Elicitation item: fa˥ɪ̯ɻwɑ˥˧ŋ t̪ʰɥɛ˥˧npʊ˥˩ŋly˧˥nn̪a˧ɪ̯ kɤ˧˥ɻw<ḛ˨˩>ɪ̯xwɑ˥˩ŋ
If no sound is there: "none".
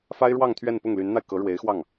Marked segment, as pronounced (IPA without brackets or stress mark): e˧˥